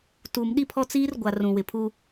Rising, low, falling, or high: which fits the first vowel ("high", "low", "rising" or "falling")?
low